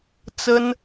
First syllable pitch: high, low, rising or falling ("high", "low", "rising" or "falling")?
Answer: high